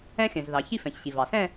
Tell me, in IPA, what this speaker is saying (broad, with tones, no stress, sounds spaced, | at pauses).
ɛ̃˧ xʲ œ̃˩ z ð ɑ˩ ç i˥˧ f ɛ̃˩ ç ɕ i˩ v ɑ˩ s ɛ̃˥˧